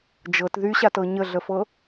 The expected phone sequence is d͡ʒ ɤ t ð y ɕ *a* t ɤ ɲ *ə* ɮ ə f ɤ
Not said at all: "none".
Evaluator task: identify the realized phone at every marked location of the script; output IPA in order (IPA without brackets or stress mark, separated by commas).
a, ə